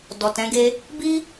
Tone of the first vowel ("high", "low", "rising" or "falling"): low